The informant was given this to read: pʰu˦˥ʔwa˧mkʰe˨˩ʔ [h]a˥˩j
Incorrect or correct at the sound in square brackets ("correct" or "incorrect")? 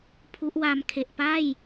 incorrect